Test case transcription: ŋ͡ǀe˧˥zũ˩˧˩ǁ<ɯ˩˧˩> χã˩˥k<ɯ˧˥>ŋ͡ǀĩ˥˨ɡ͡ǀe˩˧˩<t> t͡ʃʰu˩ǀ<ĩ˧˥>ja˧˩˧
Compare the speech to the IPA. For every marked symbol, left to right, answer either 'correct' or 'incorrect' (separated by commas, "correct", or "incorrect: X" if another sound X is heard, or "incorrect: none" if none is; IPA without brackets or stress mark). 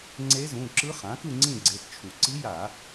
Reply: incorrect: ɯ˧˥, incorrect: ɯ˥˨, correct, incorrect: i˧˥